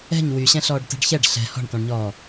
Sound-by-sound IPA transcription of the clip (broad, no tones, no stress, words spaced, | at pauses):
ɛ̤ɲ wyɕɛ̃ɬɔːɖ tɛ̤ɖçɛɖ ɬɛ̤ hɔ̤ɳtɔ̃ɳɲɔː